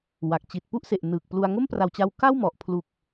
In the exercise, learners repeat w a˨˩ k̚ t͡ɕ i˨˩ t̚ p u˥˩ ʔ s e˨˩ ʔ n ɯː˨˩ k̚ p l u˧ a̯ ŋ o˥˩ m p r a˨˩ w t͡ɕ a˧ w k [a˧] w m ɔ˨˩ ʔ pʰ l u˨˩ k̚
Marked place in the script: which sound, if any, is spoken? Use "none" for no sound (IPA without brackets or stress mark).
a˥˩